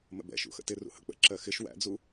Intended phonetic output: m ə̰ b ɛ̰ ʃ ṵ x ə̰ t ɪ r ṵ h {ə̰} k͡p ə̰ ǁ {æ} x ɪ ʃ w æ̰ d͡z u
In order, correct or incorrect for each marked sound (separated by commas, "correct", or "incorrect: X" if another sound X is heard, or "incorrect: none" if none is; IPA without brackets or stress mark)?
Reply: correct, incorrect: ɜ